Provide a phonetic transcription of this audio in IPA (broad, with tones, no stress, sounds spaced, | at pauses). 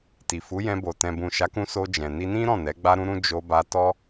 t i˨ f u˨˦ j ɛ̃˧ b o˨ t ɛ̃˨ b ũ˨ ʃ a˨˦ k ũ˧ s o˧ d͡ʒ ɛ̃˨ n i˧ n ĩ˦ ɾ ɔ̃˦˨ n ɛ˨˦ ɡ͡b a˦ ɾ ũ˦ ɾ ũ˦ d͡ʒ o˧ b a˧ t ɔ˦